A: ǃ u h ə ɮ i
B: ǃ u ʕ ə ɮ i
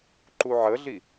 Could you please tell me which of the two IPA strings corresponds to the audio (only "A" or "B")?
B